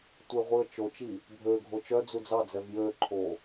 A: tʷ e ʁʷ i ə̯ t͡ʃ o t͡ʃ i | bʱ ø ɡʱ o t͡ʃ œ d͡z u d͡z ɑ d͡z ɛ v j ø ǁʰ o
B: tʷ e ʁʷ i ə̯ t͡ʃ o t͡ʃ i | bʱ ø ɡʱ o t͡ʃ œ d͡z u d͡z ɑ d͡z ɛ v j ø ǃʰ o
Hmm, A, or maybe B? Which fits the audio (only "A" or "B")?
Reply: B